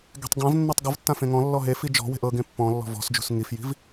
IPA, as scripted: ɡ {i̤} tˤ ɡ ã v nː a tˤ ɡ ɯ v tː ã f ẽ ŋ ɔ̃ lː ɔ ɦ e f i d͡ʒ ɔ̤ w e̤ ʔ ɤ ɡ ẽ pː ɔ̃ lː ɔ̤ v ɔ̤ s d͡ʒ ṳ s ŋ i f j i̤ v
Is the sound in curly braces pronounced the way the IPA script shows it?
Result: no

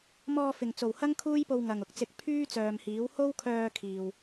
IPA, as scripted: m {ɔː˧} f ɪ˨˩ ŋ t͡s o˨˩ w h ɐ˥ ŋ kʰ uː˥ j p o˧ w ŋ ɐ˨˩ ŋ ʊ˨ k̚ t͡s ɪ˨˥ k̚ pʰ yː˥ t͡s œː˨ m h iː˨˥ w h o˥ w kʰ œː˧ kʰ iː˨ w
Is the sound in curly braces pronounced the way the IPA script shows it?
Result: yes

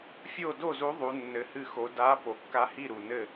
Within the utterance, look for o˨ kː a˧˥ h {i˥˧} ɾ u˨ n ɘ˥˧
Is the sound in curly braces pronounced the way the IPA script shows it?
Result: yes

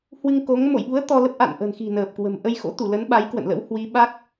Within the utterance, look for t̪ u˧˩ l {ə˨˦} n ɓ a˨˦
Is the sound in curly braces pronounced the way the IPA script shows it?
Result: yes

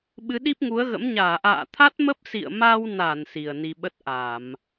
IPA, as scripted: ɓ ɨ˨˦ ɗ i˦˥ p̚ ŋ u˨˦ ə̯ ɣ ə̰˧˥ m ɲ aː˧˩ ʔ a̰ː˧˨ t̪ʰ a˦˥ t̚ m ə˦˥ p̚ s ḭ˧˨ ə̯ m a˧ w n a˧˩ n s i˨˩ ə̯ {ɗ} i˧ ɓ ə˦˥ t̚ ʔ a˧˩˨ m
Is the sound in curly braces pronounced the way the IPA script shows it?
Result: no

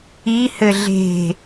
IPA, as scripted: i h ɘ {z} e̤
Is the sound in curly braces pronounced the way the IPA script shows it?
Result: no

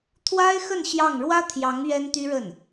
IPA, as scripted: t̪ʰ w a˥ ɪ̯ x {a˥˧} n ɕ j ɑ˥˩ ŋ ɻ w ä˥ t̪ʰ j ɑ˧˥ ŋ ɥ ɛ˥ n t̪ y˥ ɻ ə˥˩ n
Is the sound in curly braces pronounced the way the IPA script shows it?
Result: no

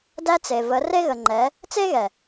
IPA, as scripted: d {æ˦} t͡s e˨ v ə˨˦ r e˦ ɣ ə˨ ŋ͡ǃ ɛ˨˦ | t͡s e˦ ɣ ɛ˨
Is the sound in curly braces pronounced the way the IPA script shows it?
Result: yes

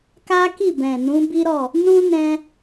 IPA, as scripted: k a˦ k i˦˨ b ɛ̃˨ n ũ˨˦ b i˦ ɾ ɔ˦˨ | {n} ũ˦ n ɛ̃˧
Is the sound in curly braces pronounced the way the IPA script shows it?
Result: yes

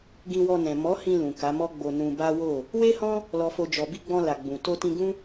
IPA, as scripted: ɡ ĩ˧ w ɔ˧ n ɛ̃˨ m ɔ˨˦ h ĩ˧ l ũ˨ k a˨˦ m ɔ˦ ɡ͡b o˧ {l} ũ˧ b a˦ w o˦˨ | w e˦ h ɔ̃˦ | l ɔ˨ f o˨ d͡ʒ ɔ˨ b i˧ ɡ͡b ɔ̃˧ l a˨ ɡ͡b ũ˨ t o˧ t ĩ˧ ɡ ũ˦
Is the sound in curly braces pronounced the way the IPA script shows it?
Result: no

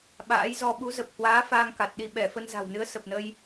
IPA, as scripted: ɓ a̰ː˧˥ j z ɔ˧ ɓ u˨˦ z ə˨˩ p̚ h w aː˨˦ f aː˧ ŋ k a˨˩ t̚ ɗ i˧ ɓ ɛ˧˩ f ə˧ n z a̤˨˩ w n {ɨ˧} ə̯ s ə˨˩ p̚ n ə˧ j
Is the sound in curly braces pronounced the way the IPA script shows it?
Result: no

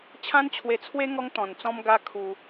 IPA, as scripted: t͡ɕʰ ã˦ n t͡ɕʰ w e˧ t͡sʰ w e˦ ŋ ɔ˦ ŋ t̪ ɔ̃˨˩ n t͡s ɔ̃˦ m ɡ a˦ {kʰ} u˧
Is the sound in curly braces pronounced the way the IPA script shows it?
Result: yes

